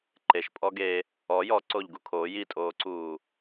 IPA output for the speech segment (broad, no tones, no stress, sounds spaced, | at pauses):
ǃ e ʃ pʼ ɔ ɡ e | ɔ j ɔ ǀ o ʎ ɡ u kʰ o j i tʼ oː ǀ uː